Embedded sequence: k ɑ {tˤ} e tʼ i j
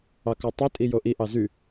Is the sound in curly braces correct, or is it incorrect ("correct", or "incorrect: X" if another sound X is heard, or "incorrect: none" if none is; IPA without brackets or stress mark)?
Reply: correct